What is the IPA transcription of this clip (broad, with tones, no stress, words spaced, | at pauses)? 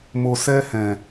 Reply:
mo˨sɛ˧hɛ̃˨